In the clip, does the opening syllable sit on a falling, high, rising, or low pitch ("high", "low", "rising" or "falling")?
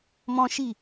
high